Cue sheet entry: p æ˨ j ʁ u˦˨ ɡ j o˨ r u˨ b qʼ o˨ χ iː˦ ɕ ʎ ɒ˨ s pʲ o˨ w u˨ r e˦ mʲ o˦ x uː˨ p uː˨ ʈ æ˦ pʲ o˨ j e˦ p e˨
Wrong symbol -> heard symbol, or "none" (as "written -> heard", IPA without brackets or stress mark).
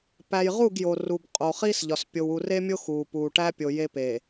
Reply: ɕ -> s